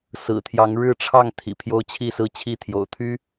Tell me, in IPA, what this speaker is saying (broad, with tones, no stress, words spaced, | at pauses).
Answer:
sɹ̩˨˩t̪ʰjɑ˨˦ŋ ɻɻ̩˥˨ʈ͡ʂʰɑ˥˨ŋ t̪ʰḭ˨˩ pʰjo˦ʊ̯t͡ɕʰi˥˨sɹ̩˥˨t͡ɕʰi˥˨ t̪ʰjo̰˨˩ʊ̯t̪ʰy˦